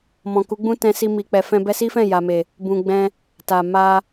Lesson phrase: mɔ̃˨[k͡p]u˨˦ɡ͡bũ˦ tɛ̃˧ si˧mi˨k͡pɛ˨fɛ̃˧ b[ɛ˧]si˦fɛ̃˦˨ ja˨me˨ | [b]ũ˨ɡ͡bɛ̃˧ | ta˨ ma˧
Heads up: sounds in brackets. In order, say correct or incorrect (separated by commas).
incorrect, correct, correct